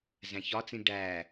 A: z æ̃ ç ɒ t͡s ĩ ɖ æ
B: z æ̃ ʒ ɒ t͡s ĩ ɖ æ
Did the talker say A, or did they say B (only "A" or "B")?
A